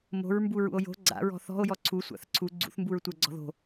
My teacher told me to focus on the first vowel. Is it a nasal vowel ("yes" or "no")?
no